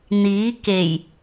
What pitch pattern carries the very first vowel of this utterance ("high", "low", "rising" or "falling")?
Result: rising